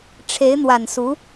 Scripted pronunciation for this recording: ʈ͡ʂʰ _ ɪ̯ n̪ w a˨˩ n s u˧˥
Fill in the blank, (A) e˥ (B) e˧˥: B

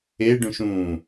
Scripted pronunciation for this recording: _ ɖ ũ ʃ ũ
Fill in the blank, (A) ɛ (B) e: B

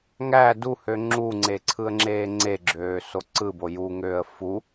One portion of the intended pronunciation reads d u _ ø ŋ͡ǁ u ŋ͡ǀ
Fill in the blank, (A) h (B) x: A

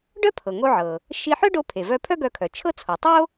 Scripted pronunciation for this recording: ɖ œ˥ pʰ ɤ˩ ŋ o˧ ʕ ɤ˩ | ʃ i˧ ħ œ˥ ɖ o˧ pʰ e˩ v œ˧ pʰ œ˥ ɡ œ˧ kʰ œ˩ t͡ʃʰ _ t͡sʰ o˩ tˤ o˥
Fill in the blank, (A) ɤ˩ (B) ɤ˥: B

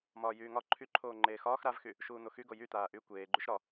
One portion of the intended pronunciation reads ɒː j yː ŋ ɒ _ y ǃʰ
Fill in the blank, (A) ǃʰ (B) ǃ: A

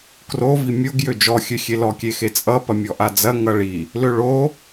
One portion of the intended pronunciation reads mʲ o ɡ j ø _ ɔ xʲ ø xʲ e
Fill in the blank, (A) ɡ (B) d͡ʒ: B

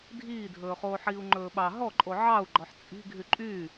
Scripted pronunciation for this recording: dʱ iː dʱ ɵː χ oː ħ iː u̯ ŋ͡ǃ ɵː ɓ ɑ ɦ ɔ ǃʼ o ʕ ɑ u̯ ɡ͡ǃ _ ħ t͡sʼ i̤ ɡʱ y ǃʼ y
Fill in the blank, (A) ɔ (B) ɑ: A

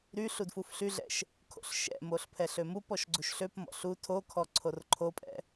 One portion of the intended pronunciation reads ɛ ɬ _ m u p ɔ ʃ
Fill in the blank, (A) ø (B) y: A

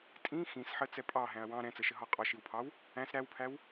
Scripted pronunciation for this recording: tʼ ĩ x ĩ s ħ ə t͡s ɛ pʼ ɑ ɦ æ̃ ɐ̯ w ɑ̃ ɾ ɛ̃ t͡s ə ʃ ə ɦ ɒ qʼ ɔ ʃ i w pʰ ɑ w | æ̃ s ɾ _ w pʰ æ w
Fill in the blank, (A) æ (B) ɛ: A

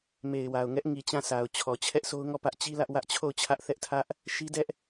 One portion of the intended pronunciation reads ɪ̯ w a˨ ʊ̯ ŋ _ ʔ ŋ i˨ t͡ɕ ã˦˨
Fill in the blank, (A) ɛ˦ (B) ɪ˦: A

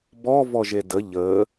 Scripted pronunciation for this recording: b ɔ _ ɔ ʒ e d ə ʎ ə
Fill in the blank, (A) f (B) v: B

